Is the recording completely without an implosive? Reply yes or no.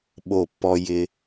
no